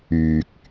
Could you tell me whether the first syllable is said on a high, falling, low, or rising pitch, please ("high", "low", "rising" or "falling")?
low